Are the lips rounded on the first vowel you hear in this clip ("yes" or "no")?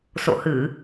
yes